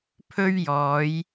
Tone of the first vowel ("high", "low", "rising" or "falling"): high